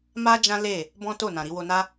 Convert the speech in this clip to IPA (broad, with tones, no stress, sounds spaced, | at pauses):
m a˦ d͡ʒ ã˦ l e˦˨ | b ɔ̃˦ t o˦˨ n ã˨ ɾ i˧ w o˧ n a˦